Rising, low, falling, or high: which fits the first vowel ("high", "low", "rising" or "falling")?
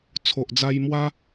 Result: low